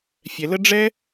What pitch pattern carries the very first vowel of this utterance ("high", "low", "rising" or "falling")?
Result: low